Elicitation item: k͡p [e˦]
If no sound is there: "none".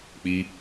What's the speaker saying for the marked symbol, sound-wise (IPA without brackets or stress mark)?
i˦